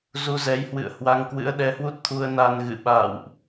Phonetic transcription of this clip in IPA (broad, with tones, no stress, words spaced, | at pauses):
zu˧zɛ˨˦jhwɨ̰˧˨ə̯ hwa˧ŋkwɨ̰˧˥ə̯ɗɛ˨˦hwu˦˥t̚ t̪ʰu˧ə̯na˧n ɣɨ̰˧˨ɓa̰ː˧˨wʔ